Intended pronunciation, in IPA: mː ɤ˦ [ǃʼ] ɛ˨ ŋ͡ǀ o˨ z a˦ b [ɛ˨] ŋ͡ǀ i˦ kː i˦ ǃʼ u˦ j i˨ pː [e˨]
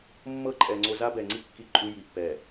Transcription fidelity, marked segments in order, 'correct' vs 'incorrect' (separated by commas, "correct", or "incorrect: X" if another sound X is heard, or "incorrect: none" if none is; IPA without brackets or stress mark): correct, correct, incorrect: ɛ˨